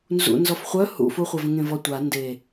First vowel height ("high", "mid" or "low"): high